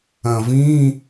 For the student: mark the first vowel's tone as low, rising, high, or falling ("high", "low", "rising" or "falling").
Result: low